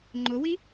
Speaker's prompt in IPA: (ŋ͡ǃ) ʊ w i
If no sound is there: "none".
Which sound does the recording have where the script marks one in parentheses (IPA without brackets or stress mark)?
ŋ͡ǃ